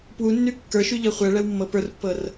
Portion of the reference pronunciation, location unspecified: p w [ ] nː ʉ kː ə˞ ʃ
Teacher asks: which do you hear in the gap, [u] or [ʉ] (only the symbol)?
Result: u